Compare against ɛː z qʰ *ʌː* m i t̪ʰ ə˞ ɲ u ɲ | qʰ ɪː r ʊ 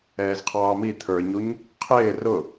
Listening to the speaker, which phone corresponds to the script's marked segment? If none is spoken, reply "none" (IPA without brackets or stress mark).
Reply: ɑː